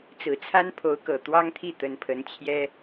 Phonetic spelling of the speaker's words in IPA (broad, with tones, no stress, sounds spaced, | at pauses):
t͡s ɹ̩˨˩ t͡sʰ a˥ n pʰ o˧˥ ʊ̯ k ɤ˨˩ t̪ w ɑ˥ ŋ t̪ʰ i˥˩ t̪ ə˧˥ n pʰ ə˧˥ n t͡ɕʰ j ɛ˥